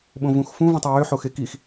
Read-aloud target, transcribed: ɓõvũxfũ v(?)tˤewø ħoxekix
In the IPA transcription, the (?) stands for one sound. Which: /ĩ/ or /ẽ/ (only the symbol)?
ĩ